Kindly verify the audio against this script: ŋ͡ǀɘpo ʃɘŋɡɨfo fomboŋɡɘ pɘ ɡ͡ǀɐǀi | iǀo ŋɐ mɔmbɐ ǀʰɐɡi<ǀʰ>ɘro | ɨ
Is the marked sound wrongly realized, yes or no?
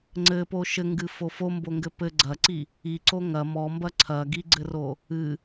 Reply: yes